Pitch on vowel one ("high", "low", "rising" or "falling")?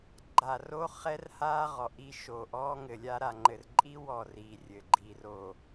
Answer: low